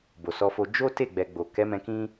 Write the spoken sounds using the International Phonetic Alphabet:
b o˨ s ɔ˧ f o˧ d͡ʒ o˦ t e˦˨ ɡ͡b ɛ˨ ɡ͡b o˨ k ɛ˨˦ m ɛ̃˧ k ĩ˦

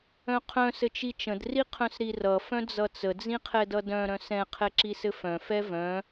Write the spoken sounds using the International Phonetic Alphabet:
œ̃ qʰ œ̃ s ɘ t͡ʃ i t͡ʃ ə̃ d r i qʰ œ̃ s ɾ i r ʌ f œ̃ d͡z ʌ t͡s ə d͡z ĩ qʰ ɛ d ʌ d œ̃ ɾ œ̃ s ɛ̃ qʰ ɛ ǁ i s ɘ f œ̃ f ɛ v œ̃

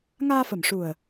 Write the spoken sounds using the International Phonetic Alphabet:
ŋ aː˧ f ə˨˩ m ʂ u˨˩ ə̯

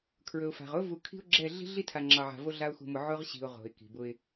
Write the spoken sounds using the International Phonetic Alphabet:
kʰ ɹ ɵ˨ ʊ̯ f a̤˨ ʁ ʊ˦ v u˨ kʰ i̤˦ ʊ̯ ɡ͡ǁ ɛ˦˨ ɮ i̤˦ ɮ i˦ tʰ a˨ ŋ͡ǁ ɑ˨ ʕ a̤˨ v o˦ ɮ a˦ ʊ̯ x ṳ˨ m ʊ˨ ʕ ʊ˦ ʁ ɕ i̤˨ ʊ̯ ʁ o̤˨ ɪ̯ k i̤˨ b ʊ˦ ɪ̯

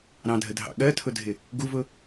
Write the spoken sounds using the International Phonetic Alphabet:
ɾ ɑ̃ dʱ ə dʱ ɑ̰ ɠ ɜ tʰ ʊ dʱ ɪ | ɡ u v ʊ

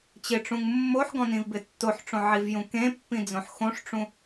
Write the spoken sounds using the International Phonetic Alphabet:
t͡ɕ ɪ ʈ͡ʂ ũ ŋ mː o ħ ɡ ɔ̃ n ĩ v b ɪ tː o ħ ʈ͡ʂ õ ʕ i v j ũ k ẽ pː ĩ d͡z õ ħ x õ ʂ ʈ͡ʂ ũ

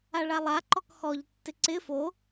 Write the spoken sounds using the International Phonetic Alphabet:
a ɭ a lˠ a ǃ ɔ k x ɔ ʎ tː ɪ ǀ ɪ f o

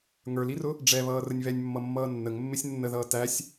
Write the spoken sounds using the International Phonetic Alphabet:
ŋ ə˞ l i r ʊ | ɖ͡ʐ ɛ β ʌː r ə nʲ β ɛ nʲ mː ʌ mː ʌː nː ə ŋ mː ɪ sʲ nː ə ð ʌː t æ sʲ

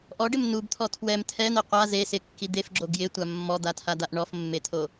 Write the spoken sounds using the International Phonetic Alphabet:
ʔ ɔ ɖ ɪ m n u b t̪ʰ ɔ tʰ w ɛ m tʰ ɛ n̪ ɛ qʷ a z e s ɪ kː i d̪ e f ɡ͡ǁ o ɡ j ɪ tʷ a mː ɔ d̪ a tʰ a d̪ a ʔ ɳ ɔ f mː e t̪ʰ o

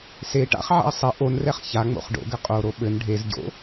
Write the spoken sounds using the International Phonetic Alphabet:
s e ʈ a̰ χ ʕ a̰ ə̯ sˤ ɘ ʔ o n r ɛ χ ç a ŋ͡m o̰ χ ɖ o̰ ɡ ɘ qʼ o ɾ o ɓ ɘ n ɖʱ e z ɟ o̰

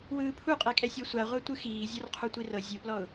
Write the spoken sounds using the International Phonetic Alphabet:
w ɯː pʰ u qʼ e kʼ ɛ sʲ ɔ sʷ a ʁʷ a tʷ ɯ x iː zʲ ɔ r qʰ u tʷ i r ɤ zʲ u p l ɔ ʊ̯

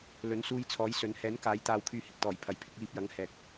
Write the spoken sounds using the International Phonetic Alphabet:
l ɵ˨˥ n s uː˧ j t͡sʰ ɔː˨˥ j s ɵ˨˧ n h ɛː˨˥ n k aː˨˥ j t̪ aː˧ w kʰ yː˧ h ɪ˨ k̚ t̪ ɔː˨˩ j pʰ ɐ˨ j pʰ ɪ˨˥ k̚ j iː˧ p̚ j ɐ˨˥ ŋ h ɛː˨ k̚

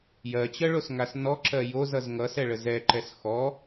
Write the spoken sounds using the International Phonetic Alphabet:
j ɜ t͡ɕ ɜ ɭ o s ŋ a s n ɔ ǁ ɜ j o z ʌ z ŋ ʌ s ɛ ɭ ə z ɛ ǃ ɛ s x ɔ

